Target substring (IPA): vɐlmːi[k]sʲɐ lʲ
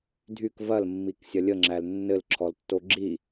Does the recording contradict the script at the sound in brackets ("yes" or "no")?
no